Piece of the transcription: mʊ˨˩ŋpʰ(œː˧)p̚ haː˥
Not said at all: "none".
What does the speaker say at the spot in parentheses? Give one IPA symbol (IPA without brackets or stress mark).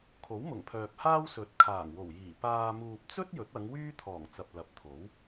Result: œː˨